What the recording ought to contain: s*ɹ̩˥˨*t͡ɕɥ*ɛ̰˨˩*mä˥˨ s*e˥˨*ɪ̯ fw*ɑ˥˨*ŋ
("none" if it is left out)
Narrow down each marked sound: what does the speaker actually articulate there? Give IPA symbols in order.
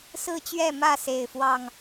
ɹ̩˥˨, ɛ˥˨, e˥˨, ɑ˥˨

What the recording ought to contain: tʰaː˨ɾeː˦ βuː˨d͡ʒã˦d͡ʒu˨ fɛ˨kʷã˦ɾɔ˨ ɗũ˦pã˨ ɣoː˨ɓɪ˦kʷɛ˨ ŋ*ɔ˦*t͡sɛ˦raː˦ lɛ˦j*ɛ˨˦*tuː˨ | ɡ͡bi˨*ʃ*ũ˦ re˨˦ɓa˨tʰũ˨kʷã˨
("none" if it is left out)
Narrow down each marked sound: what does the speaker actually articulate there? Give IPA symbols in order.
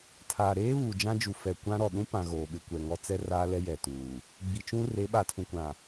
ɔ˦, ɛ˨, t͡ʃ

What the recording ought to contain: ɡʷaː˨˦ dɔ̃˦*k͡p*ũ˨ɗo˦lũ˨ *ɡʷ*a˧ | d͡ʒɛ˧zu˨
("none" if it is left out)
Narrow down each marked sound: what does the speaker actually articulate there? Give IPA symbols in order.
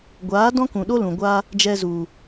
k, ɡʷ

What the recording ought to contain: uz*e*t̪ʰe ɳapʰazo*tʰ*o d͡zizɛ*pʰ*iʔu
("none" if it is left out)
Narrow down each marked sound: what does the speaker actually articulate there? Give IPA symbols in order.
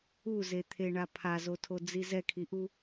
e, tʰ, kʰ

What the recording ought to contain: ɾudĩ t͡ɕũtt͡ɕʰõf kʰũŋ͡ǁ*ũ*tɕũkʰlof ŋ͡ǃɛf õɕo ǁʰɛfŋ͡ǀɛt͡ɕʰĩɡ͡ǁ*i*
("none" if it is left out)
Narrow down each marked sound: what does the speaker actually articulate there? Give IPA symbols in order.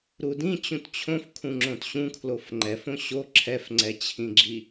õ, i

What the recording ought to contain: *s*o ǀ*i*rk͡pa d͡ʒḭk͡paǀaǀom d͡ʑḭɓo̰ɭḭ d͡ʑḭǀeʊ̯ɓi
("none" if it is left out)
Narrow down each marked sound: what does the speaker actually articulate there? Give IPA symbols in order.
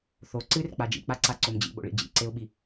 θ, ɨ

